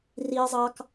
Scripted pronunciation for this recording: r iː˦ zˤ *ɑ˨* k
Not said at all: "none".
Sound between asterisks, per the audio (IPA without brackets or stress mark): ɑ˦